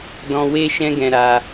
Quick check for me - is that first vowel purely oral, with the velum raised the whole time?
no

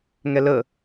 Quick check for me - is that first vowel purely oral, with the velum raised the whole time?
yes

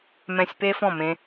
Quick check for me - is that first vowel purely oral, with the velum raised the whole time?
no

